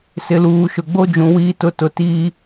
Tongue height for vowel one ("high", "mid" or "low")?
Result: high